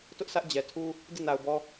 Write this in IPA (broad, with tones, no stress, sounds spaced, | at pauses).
t ʊ˦ ʔ sʰ ä˦ ʔ d͡ʑ ɛ˨ tʰ u˦ | d i˦˨ n a˨ ʊ̯ b ɔ˦